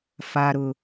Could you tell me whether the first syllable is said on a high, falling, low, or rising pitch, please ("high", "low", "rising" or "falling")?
low